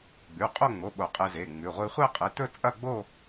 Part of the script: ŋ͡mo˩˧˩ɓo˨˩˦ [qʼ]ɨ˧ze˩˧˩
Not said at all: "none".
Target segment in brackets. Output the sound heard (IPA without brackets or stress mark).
qʼ